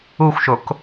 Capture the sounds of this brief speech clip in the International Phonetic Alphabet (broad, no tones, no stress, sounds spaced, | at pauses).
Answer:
u xʷ ʃ o k